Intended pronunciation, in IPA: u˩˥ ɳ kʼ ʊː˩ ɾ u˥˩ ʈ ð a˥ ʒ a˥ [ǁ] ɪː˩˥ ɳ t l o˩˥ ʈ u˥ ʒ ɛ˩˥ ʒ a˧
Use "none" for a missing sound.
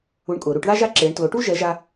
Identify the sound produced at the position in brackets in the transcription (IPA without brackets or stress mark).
ǁ